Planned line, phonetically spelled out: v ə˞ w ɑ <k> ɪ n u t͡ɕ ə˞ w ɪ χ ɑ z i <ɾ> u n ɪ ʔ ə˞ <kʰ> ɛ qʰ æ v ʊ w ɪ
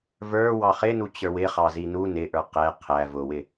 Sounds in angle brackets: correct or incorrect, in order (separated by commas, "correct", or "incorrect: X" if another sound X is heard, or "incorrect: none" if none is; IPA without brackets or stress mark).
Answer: incorrect: χ, incorrect: n, incorrect: q